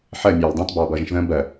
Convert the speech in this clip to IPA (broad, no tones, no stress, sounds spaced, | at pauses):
ħ ɜ mʲ ɑː l dˤ ə̃ː t b ɑː b ʌː ʒ ə̃ ʃ ð ə̃ː b ɜ